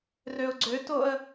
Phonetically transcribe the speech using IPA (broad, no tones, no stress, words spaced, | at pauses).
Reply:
røʊ̯ɡ͡ǀøtoə̯